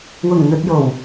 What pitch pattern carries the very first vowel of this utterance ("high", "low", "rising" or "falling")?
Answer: low